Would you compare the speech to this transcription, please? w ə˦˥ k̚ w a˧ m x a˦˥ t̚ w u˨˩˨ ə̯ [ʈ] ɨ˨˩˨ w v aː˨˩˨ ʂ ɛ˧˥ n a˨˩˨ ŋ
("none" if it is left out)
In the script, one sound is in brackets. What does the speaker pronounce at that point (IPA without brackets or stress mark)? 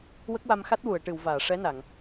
ʈ